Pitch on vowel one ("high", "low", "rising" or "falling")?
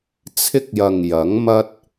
high